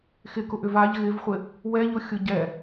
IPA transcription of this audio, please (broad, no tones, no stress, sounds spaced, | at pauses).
x ɪ k ʊ ʔ ʏ v a ʎ ɣ ɪ v χʷ ɪ | w ɛ ʎ ʊ xʲ ʊ ɟ ɛ